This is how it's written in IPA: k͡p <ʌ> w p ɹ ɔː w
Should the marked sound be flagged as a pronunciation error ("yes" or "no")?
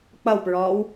no